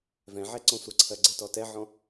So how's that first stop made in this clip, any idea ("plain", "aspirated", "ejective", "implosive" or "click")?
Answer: click